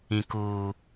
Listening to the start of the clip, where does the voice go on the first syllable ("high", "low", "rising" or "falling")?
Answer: low